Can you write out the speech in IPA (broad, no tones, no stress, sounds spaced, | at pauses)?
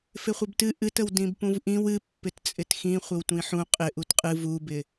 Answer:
f ɪ χʷ ɪ b t ɨ ʔ ɨ t ə w d ĩ b p ũ v ʔ ĩ w ɨ pː ɪ t t͡sʼ ɪ t x ĩ χʷ ɪ w tʷ ĩ ħ ũ qʼ ɪ ʔ u t qʼ ɨ v u b ɪ